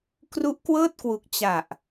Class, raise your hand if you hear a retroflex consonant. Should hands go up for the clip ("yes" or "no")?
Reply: no